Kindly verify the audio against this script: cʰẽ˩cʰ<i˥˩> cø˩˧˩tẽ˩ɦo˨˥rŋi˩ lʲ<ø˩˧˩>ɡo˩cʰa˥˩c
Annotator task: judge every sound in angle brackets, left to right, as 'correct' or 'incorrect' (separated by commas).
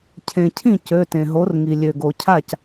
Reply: incorrect, incorrect